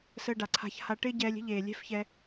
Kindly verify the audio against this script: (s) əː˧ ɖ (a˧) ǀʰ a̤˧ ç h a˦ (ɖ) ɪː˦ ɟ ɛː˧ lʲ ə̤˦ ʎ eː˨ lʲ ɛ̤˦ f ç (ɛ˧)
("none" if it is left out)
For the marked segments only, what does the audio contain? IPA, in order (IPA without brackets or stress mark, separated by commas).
s, a˨, ʈ, ɛ˧